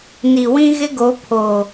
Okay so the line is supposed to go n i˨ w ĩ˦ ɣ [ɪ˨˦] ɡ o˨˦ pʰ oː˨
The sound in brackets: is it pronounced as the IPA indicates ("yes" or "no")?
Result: no